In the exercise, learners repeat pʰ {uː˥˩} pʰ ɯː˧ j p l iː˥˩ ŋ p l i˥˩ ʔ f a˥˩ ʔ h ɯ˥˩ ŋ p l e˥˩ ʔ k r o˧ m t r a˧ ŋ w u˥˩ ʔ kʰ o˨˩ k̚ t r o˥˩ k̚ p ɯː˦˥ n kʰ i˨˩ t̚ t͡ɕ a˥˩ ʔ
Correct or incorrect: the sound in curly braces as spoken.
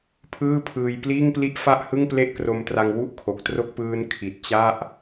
incorrect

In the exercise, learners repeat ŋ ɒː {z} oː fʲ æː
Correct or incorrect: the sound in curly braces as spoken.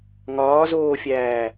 correct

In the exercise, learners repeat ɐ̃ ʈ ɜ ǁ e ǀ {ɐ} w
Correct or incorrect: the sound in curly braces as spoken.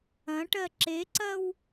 correct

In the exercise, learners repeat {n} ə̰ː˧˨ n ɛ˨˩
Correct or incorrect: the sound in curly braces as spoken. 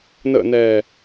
correct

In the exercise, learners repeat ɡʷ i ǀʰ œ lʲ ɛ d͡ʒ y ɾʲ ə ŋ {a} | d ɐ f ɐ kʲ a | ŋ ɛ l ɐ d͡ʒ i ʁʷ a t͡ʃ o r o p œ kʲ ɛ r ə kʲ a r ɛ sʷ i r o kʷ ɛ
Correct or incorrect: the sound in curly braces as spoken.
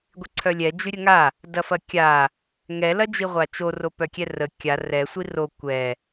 correct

